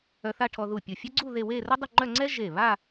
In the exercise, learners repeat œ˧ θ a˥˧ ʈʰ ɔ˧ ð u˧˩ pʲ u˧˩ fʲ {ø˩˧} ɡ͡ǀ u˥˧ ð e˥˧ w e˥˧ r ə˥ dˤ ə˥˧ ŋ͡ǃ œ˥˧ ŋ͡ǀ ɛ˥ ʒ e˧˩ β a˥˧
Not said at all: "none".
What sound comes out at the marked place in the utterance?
ø˥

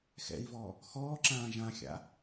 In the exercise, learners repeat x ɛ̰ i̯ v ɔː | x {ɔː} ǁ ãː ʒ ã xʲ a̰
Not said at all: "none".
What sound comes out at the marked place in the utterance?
ɔː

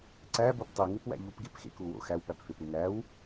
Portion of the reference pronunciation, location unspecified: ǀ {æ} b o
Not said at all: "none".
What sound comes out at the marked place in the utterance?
æ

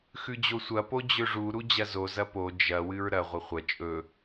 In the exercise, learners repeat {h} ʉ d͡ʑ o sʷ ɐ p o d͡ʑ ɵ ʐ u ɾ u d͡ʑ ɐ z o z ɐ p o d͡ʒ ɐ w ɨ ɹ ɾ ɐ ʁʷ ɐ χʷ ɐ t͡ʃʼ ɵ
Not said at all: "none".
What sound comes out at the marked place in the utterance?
x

